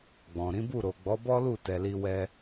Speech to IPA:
ɡ͡b ɔ̃˨ ɾ ĩ˨˦ b u˦˨ ɾ o˨ ɡ͡b ɔ˨˦ b ɔ˦ l u˦˨ t ɛ˨ l i˧ w ɛ˧

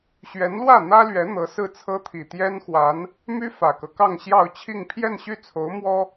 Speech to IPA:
ɕ ɥ ɛ˧˥ n l w ä˥˩ n̪ ä˥ l ɥ ɛ˧˥ n̪ ɤ˧˥ s ɹ̩˥˩ t͡sʰ ɤ˥ t̪ʰ i˨˩ t̪ j ɛ˥ n x w a˧˥ n | m y˥ f ä˨˩ k ɤ˦ k ɑ˥˧ ŋ ɕ j ɑ˥˧ ʊ̯ t͡ɕʰ i˥˧ ŋ pʰ j ɛ˥˧ n ɕ y˥˩ t͡sʰ o˧˥ ʊ̯ m w ɔ˥

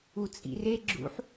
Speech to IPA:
u t͡sʼ ḭ r e ɡ͡ǁ ṵ ħ

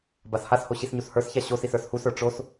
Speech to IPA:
b a s h a s h o ɕ i s ɲ u s h ə˞ s ç a ɕ o s i s ə˞ s h u s ə˞ ʈ͡ʂ o s

